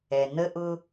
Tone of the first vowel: low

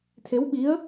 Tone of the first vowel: rising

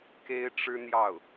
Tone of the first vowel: high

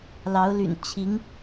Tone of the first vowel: rising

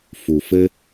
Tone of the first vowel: low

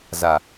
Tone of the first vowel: low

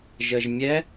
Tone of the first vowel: low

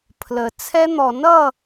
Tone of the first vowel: low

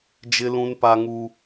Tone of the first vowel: high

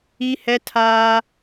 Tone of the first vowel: high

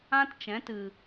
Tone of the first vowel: high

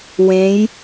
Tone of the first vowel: rising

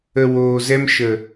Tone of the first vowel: low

